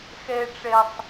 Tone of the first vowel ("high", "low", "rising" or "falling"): high